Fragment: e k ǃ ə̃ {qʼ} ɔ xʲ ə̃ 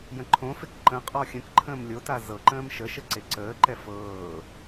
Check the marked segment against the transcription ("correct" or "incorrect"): correct